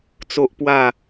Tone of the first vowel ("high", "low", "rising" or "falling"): high